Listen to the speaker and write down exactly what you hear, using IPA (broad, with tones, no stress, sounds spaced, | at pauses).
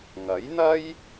ŋ ɐ˨˥ j n̪ ɐ˥ j